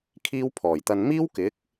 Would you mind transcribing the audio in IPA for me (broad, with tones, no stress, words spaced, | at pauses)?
kʰiː˥w pʰɔː˨˩j t̪ɐ˨nmiː˥w kɪ˨˥k̚